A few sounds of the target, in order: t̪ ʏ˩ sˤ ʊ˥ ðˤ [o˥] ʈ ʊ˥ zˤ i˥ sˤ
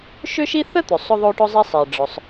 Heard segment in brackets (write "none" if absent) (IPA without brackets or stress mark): o˥